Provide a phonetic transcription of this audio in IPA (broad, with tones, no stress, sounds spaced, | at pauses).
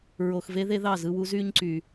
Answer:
ɹ o˨ x v e˦ ð e˦ ð ɑ˦˨ z ɯ˧ w u˦ z y˦ ɲ ǀ y˨